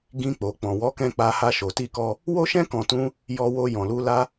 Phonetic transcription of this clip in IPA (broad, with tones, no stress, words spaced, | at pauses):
ɡĩ˧ k͡po˨k͡pɔ̃˨wɔ˨˦kɛ̃˧ k͡pa˧ha˧ʃo˨ ti˧kɔ˧ | wo˦ʃɛ̃˦ kɔ̃˧tũ˦ | jɔ˧wo˧ jɔ̃˨lu˧ la˦